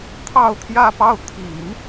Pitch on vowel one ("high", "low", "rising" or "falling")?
falling